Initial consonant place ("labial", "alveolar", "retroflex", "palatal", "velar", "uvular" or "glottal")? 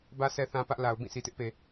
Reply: labial